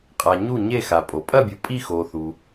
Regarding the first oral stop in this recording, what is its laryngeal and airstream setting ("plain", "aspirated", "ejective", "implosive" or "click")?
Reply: ejective